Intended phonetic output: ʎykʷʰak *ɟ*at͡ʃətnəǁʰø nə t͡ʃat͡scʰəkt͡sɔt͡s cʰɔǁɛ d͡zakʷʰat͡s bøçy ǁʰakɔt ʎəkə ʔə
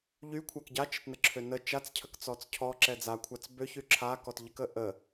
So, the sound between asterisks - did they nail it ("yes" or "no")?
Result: yes